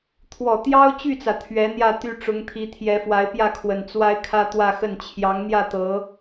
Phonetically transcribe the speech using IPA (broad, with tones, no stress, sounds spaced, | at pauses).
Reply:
t̪ʰ w ɔ˨˩ t̪ j ɑ˥ ʊ̯ t͡ɕ y˥˩ t͡s ä˩ t̪ʰ ɥ ɛ˧˥ n̪ j ä˥˧ t̪ y˥˩ ʈ͡ʂ ʊ˧˥ ŋ t̪ʰ i˧˥ t̪ʰ j ɛ˧˥ f w a˧˥ ɪ̯ p j ä˥˩ kʰ w ə˨˩ n t͡s w a˥ ɪ̯ kʰ ä˥ t̪ w ä˥˧ x ə˥˩ n t͡ɕʰ j ɑ˧˥ ŋ n̪ j ä˥˩ t̪ ɤ˧˥